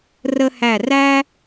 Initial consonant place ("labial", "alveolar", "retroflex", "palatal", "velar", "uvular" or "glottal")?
alveolar